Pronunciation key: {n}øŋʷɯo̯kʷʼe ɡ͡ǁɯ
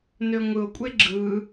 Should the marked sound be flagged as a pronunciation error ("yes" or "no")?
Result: no